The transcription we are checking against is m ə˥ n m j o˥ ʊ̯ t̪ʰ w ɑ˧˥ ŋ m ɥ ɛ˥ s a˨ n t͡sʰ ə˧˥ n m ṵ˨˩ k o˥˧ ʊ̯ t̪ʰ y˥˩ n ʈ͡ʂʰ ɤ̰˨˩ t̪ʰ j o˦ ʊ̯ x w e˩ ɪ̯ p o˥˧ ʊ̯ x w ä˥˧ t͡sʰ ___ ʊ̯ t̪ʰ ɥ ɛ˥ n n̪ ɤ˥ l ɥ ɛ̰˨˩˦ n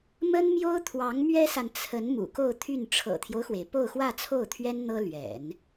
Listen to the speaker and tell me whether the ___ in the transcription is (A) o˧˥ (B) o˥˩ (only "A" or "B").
B